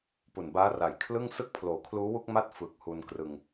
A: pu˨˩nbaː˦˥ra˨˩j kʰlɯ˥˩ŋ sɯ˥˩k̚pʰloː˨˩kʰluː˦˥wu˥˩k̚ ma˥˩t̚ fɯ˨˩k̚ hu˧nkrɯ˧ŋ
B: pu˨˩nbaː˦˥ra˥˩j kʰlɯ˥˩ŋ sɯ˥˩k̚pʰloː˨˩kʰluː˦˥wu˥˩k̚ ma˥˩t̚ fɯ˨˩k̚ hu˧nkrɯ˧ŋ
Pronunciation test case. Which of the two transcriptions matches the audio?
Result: A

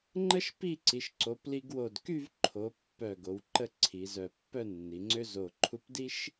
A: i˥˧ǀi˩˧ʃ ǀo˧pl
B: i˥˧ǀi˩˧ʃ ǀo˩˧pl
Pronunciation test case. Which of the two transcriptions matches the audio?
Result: B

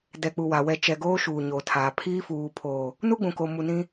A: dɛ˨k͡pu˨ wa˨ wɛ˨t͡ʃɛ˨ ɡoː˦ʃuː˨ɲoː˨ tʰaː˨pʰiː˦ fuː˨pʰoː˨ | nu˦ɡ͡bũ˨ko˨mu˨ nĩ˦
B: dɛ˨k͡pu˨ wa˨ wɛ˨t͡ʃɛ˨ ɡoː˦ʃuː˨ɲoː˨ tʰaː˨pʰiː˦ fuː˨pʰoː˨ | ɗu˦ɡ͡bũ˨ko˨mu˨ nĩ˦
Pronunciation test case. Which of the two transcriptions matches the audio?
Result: A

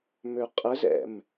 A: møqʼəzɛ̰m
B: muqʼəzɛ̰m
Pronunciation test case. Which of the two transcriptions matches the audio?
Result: A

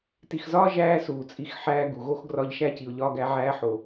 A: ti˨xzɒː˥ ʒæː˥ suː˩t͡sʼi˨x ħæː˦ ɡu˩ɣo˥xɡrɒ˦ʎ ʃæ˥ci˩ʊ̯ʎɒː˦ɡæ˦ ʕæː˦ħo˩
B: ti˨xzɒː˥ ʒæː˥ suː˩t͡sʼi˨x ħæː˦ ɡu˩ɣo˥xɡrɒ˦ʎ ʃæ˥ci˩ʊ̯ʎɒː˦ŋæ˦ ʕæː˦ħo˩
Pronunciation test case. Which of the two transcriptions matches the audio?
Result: A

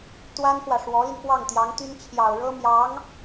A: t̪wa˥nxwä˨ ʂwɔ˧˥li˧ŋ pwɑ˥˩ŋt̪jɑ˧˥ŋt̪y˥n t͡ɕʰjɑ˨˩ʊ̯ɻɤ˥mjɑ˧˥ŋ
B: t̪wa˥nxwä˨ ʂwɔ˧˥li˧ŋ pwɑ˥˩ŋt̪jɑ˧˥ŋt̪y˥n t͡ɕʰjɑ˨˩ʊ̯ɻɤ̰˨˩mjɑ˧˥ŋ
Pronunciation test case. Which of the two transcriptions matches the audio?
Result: A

